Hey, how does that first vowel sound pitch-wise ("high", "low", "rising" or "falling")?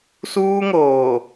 high